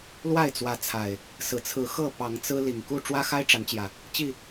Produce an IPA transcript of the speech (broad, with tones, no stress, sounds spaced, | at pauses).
l w a˥˨ ɪ̯ t͡s w ä˨˦ t͡sʰ a˨˩ ɪ̯ | s ɹ̩˨˩ t͡sʰ ɹ̩˨˦ x ɤ˥˨ p ɑ˨˦ ŋ t͡s ɹ̩˦ l i˨˩ ŋ k u˥˨ ʈ͡ʂ w ä˦ x a˦ ɪ̯ ʈ͡ʂ a˨˦ n t͡ɕ j ä˨˩ | t͡ɕ i˥˨